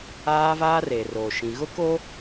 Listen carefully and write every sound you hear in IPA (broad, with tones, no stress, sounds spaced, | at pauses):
aː˦ v aː˦ r e˨ r oː˨ ʃ ĩ˨ ɣ ʊ˦ k o˦